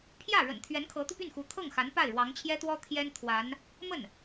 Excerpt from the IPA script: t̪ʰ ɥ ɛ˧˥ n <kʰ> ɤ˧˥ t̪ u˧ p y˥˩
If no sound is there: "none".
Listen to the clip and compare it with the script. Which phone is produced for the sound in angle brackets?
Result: kʰ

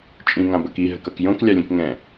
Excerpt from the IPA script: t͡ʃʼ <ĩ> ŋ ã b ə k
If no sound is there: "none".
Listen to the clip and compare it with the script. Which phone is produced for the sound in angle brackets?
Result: ĩ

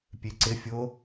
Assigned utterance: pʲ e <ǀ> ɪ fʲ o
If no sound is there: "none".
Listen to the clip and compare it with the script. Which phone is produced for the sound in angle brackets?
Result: ǀ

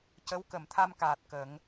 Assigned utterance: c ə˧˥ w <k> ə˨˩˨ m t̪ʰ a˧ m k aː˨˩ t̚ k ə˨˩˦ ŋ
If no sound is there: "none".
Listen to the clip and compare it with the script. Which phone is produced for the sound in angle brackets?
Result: k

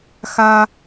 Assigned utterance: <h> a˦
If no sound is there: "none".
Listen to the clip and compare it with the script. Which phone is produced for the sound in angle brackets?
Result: x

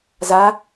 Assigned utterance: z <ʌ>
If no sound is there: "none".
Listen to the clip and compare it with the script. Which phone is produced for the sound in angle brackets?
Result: a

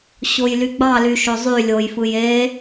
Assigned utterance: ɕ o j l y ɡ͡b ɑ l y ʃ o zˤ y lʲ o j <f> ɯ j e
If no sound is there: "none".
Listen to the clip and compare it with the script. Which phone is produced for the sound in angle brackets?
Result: f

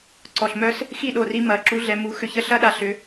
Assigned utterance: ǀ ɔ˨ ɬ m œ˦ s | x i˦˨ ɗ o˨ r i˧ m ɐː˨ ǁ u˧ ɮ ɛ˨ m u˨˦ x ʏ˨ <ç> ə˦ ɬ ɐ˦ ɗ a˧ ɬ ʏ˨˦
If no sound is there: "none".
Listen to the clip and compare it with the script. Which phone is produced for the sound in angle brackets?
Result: ç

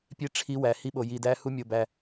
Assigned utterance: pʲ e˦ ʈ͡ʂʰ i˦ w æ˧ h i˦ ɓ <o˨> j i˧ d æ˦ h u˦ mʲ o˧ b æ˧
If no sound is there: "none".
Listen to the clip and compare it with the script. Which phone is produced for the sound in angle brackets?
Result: o˧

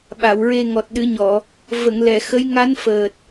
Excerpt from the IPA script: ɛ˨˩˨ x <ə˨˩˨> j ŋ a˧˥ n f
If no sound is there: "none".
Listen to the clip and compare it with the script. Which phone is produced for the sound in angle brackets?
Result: ə˧˥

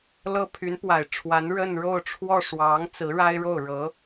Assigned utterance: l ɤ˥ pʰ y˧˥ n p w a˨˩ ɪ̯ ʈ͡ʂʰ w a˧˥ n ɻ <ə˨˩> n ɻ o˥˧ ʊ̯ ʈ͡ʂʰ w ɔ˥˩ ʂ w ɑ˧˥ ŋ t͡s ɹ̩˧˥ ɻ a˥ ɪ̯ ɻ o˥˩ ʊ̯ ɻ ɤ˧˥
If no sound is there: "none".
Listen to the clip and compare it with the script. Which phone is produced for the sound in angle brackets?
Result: ə˥˧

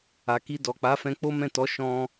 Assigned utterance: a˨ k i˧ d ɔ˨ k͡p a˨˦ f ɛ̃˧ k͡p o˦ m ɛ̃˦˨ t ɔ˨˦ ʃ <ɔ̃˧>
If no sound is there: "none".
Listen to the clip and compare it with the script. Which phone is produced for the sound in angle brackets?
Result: ɔ̃˧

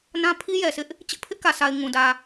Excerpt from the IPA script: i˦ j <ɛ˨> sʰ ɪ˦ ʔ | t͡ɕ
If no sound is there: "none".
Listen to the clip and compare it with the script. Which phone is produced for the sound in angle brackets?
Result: ɛ˨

